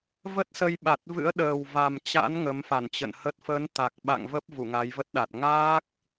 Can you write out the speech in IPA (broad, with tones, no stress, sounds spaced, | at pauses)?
v ə˦˥ t̚ s ə˧ j ɓ a˨˩ t̚ v ɨ̰˧˥ ə̯ ɗ əː˨˩ w v a˨˩ m t͡ɕ a̰˧˥ n ŋ ə˨˦ m f a˧˩ n t͡ɕ ə̰˧˨ n h ə˦˥ t̚ f ə˨˦ n t̪ a˨˩ k̚ ɓ a̰˧˨ ŋ v ə˦˥ p̚ v u˧˩ ŋ a˨˦ j v ə˦˥ t̚ ɗ a˨˩ t̚ ŋ aː˦˥ k̚